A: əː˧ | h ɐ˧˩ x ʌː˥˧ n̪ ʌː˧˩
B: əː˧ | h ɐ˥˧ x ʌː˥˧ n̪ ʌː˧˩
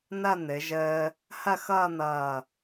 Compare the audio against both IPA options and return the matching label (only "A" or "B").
B